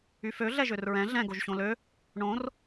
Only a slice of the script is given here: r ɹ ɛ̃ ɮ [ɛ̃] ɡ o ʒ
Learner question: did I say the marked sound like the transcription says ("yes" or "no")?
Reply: yes